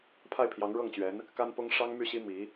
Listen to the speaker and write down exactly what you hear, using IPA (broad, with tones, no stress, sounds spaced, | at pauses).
pʰ a˥˩ ɪ̯ pʰ j ɑ˧˥ ŋ ɻ ɤ˥˩ ŋ t͡ɕ ɥ ɛ˧˥ n | k a˥ n p ʊ˥ ŋ ʂ ɑ˥ ŋ m y˥˩ ɕ i˥ m i˧˥